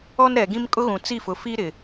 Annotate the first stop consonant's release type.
plain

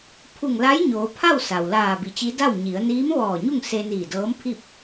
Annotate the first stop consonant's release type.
aspirated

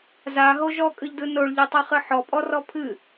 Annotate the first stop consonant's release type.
ejective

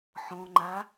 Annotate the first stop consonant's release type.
click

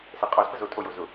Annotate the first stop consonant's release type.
ejective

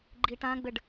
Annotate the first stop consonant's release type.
click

